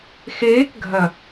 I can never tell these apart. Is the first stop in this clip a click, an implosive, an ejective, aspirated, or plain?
plain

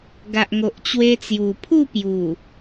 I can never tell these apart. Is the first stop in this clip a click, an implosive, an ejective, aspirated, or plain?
plain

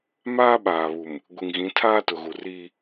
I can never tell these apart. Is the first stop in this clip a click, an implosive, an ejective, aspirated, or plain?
implosive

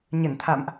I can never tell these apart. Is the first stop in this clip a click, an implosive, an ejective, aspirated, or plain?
aspirated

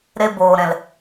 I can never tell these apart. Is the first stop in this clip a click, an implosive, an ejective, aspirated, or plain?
plain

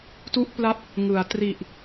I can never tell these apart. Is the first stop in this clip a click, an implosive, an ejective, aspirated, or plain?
plain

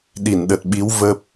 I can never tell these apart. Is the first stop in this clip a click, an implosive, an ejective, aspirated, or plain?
implosive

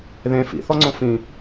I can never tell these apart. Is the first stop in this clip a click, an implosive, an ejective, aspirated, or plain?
click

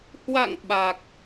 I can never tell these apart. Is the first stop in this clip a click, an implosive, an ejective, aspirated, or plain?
implosive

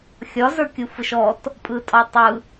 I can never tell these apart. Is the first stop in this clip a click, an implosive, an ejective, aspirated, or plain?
plain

